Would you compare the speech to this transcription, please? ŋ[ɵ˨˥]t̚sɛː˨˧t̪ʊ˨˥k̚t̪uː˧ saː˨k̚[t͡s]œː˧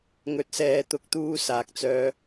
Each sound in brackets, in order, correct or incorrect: correct, correct

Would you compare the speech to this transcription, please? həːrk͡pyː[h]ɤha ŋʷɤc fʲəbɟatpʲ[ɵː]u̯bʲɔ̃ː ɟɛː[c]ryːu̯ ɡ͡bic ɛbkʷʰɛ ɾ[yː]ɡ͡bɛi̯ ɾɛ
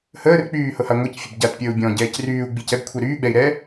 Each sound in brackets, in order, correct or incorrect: correct, incorrect, correct, correct

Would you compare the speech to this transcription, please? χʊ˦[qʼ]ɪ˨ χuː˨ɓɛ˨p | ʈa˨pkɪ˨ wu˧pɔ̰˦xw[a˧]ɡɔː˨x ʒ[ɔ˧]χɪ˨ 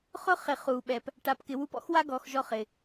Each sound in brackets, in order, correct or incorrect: incorrect, incorrect, correct

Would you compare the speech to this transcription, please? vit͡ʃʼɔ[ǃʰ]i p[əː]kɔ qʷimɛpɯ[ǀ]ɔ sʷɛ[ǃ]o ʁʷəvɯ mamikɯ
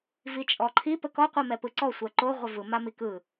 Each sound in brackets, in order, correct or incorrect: correct, incorrect, correct, correct

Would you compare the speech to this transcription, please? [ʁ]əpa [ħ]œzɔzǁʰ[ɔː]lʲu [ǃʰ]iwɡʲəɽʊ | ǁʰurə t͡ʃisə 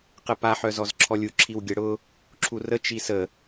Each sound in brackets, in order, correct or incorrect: incorrect, correct, incorrect, incorrect

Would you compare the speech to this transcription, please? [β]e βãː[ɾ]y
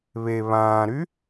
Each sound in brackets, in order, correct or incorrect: correct, correct

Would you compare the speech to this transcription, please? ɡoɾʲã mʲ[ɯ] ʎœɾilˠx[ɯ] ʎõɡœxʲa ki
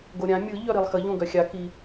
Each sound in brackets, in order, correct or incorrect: correct, incorrect

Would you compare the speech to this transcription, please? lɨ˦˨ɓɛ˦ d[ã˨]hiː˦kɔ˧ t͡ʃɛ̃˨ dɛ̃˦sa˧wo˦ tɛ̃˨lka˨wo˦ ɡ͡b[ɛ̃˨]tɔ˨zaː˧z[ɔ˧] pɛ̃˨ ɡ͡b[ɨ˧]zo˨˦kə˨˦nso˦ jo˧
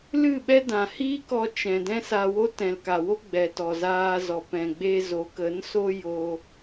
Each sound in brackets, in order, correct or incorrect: correct, incorrect, incorrect, incorrect

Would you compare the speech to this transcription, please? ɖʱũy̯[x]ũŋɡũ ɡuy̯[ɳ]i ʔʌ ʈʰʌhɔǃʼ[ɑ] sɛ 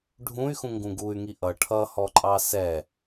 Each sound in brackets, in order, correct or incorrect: correct, incorrect, correct

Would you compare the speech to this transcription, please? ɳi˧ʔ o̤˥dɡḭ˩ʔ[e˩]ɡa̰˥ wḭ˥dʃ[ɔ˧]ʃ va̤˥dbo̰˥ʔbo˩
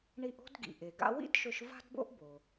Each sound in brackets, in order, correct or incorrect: correct, incorrect

